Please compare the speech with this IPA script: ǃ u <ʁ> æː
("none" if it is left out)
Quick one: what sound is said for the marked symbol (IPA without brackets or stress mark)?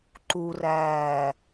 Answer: r